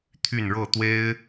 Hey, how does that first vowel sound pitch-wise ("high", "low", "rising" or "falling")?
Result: falling